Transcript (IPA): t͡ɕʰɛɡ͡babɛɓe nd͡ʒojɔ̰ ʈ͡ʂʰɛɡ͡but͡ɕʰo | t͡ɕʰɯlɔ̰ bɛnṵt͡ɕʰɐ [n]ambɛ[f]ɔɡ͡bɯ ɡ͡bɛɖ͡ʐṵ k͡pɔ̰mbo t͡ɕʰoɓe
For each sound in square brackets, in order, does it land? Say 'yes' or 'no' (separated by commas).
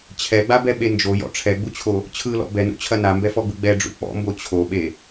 yes, yes